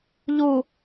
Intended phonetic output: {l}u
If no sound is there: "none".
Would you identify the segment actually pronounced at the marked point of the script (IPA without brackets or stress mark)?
ʎ